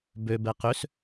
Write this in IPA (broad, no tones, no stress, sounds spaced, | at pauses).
b ø b ɛ q ø s